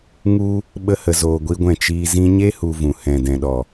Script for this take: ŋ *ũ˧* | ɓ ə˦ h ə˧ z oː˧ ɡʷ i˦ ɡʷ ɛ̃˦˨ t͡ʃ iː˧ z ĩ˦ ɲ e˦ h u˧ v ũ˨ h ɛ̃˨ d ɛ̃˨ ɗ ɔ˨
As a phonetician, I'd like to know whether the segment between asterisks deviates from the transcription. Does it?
yes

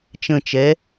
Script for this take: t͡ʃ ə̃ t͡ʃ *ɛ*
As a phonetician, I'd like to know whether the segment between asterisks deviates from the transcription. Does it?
no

